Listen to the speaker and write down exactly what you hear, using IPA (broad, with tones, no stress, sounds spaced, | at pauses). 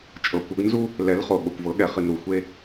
t͡ʃʼ ɤ˨ kʷ ɤ˨˦ ɡ n z u˦ | l ɛ˨˦ l χ o˨ ɠ o˨ kʷ v ɤ˨˦ ɠ ɛ˨ χ ɨ˨ n ɾ u˨ xʷ e˦